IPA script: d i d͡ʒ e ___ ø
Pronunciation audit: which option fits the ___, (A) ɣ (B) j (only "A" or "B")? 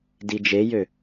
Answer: B